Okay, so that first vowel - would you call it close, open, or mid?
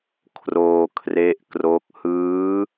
mid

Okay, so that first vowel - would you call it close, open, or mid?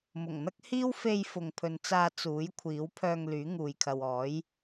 close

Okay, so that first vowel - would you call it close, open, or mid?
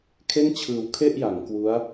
mid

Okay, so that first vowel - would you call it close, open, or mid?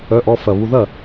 mid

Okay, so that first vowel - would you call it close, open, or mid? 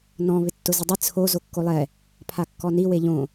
mid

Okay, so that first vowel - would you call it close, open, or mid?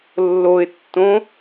mid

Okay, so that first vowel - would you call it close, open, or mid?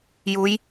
close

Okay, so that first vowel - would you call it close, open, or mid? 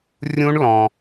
close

